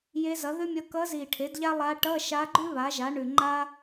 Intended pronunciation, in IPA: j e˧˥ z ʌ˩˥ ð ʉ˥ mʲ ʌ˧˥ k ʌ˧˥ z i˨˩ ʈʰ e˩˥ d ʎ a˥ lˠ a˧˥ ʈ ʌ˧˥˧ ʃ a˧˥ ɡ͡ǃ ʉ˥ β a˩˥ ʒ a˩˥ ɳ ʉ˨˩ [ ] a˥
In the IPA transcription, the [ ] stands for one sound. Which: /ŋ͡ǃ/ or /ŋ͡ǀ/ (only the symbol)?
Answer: ŋ͡ǃ